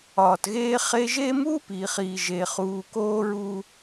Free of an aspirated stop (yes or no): yes